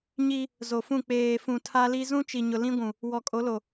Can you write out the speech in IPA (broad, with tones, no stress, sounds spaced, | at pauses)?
ɲ i˦ | z o˨ f ũ˦˨ k͡p eː˨ f ũ˨ tʰ a˦ l i˦ z ũ˦ t͡ʃ i˨ ɲ ʊ˨ l ĩ˦ ɡʷ ũ˨ | w ɔ˨ kʼ o˨˦ l o˨